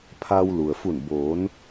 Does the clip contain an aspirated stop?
yes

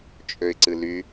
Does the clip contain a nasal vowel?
no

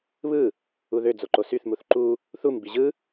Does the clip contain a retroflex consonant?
no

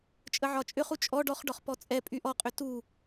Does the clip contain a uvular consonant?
yes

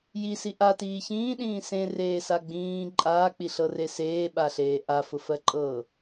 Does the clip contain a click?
yes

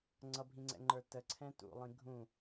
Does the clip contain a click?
yes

